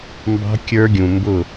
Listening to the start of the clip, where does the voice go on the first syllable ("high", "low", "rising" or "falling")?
high